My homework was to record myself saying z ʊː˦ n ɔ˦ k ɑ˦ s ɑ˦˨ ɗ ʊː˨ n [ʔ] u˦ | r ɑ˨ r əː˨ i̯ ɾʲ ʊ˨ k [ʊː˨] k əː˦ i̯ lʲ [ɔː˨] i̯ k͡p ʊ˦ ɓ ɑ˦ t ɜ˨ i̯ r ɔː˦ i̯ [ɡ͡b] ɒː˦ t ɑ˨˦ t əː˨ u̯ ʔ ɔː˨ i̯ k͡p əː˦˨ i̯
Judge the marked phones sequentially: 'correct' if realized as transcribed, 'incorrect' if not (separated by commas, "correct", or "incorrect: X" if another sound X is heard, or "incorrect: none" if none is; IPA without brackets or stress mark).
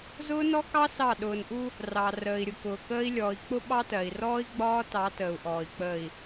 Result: correct, correct, correct, correct